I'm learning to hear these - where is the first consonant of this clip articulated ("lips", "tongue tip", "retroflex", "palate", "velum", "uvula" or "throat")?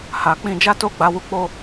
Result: throat